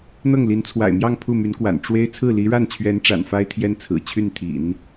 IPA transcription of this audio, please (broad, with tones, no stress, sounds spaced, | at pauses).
n̪ ɤ˥˩ ŋ l i˧˥ n t͡sʰ w a̰˨˩ ɪ̯ m j ɑ˥˧ ŋ pʰ u˥˩ m y˧˥ n k w a̰˨˩ n ʈ͡ʂ w e˥ ɪ̯ t͡sʰ ɹ̩˥˩ l i˧˥ ɻ a˥˩ n t͡ɕʰ ɥ ɛ˧˥ n ʈ͡ʂ a̰˨˩ n f a˥ ɪ̯ t̪ʰ j ɛ˥ n t͡sʰ ɹ̩˨˩ t͡ɕʰ y˥˩ n t̪ʰ ḭ˨˩˦ n